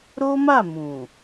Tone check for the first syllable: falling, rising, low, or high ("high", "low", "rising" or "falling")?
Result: high